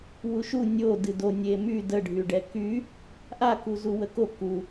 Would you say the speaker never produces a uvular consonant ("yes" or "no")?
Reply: yes